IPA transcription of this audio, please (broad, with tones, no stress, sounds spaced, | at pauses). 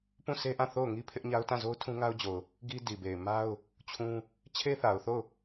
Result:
p ũ˦˨ s e˦ ʔ ã˦˨ θ o˦˨ ʊ̯ ŋ i˦ pʰ ɪ˦ ʔ ɲ a˦ ʊ̯ t ã˦˨ z o˦ ʊ̯ tʰ ũ˦ ŋ a˦ ʊ̯ d͡ʑ o˨ ʊ̯ | ɡ i˦ d i˨ b e˨ ɪ̯ m a˦ ʊ̯ | t͡ɕʰ ũ˦ | t͡ɕʰ e˦ θ a˨ ʊ̯ θ o˦˨ ʊ̯